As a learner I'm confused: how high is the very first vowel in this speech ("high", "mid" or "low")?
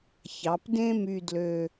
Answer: low